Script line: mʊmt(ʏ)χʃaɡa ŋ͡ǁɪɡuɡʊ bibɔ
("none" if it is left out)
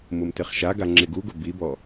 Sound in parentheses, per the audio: ɪ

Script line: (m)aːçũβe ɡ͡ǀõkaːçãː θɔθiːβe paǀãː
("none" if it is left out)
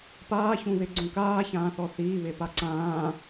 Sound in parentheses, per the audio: p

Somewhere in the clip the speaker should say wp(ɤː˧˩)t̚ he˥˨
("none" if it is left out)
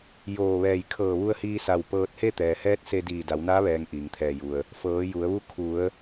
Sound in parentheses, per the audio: ɤː˧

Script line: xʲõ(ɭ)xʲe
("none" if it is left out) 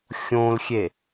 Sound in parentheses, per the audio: l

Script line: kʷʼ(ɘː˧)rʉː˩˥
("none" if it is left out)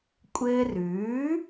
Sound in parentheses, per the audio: ɘː˧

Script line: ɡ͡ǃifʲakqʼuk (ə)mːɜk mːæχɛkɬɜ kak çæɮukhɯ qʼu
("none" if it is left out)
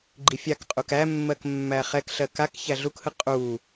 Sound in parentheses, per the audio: æ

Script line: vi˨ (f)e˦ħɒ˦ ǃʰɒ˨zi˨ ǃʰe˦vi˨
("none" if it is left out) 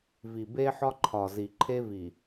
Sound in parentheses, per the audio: b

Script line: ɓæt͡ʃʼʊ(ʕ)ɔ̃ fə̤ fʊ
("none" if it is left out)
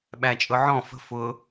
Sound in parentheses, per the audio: ʕ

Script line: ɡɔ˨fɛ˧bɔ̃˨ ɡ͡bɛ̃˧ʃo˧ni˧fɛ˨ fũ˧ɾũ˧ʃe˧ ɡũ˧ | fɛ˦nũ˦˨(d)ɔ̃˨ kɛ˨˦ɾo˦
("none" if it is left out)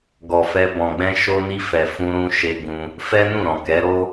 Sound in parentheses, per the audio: ɾ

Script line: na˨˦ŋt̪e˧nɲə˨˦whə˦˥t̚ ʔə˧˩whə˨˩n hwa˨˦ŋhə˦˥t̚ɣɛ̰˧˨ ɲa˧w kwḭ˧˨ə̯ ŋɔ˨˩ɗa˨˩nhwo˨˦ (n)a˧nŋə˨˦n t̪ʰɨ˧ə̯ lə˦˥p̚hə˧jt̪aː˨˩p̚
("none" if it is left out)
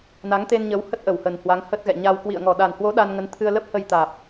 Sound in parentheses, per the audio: ɗ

